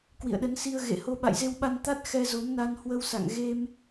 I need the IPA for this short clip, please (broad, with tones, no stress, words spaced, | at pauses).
kwḭ˧˨ə̯ɗə˨˦nsi˧ə̯ ɣḛ˧˨ho˧ ɓa̰˧˨jze˧wɓa˧n t̪a˦˥t̚ xɛ˧zo˨˦m na˧nhwə˧w sa̰˧˨ŋɣe˧m